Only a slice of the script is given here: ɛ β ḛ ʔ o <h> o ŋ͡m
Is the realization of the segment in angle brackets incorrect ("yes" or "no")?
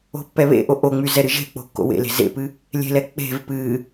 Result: yes